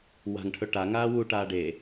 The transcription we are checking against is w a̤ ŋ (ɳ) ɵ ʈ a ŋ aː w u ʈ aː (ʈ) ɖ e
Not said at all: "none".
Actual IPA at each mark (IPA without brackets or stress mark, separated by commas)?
ʈʰ, none